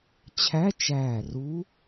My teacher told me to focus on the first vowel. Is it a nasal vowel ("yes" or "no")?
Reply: no